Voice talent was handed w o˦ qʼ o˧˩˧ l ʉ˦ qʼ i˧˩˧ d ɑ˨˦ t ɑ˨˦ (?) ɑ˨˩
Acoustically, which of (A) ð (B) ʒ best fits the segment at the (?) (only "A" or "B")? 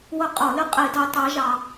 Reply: B